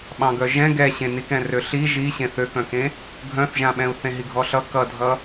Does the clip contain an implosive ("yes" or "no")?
yes